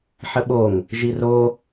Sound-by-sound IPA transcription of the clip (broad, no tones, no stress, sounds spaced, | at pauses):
ħ ə ɓ o ŋ | ʒ i r o